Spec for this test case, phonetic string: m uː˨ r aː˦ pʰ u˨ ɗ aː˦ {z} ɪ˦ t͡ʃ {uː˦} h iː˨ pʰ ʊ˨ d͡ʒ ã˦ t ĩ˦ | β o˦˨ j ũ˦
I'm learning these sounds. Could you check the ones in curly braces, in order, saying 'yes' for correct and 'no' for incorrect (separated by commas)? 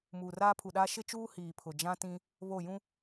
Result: no, yes